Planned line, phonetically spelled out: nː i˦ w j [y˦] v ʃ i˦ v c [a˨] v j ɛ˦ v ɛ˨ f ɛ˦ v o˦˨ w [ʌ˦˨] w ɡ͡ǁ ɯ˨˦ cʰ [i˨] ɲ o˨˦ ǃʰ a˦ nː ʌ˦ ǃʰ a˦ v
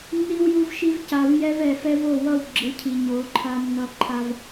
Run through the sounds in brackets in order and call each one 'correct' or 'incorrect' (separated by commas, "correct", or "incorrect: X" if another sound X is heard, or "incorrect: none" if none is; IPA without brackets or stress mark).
incorrect: u˦, correct, correct, correct